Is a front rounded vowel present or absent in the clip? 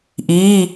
absent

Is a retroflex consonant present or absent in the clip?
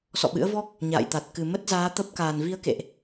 absent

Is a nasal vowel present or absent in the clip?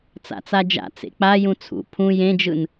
present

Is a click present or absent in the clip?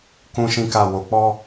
absent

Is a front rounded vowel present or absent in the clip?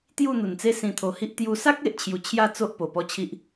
absent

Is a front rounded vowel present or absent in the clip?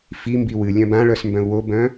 present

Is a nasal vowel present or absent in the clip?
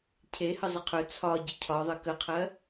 absent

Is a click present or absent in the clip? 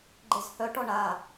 present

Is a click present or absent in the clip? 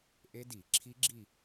present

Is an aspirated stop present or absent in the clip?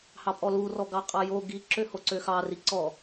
absent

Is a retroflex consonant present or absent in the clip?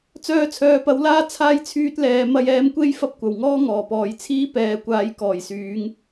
absent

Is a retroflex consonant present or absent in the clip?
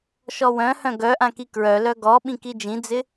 absent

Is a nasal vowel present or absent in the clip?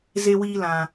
present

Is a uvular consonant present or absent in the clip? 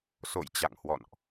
absent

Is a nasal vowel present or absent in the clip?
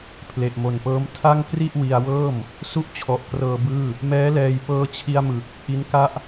absent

